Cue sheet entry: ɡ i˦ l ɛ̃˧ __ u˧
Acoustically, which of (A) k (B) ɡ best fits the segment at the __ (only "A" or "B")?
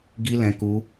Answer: A